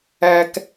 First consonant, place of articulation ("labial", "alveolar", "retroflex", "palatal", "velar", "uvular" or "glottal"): velar